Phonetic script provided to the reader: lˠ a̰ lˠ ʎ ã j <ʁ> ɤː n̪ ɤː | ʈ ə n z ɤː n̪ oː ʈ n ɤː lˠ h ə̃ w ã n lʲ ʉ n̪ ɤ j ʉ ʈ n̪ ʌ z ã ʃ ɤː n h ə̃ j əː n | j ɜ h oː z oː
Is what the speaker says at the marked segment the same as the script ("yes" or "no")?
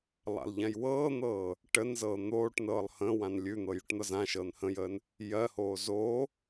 no